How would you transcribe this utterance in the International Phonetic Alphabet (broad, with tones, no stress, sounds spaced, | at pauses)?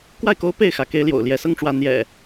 k w a˥˨ ɪ̯ k o˦ ʊ̯ p e˥˨ ɪ̯ x ä˨˦ k e˦ ɪ̯ l j o̰˨˩ ʊ̯ l j ɛ˨˦ s ɤ˦ ŋ ʈ͡ʂ w ä˨˦ n̪ j ɛ̰˨˩